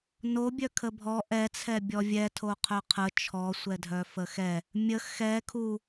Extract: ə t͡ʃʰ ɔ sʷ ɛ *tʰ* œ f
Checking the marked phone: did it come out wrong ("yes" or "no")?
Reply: yes